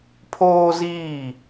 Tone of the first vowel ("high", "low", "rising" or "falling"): high